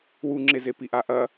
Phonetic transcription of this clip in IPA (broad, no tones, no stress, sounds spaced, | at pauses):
w u ŋ͡ǁ e z e p i ʔ a ʔ ɐ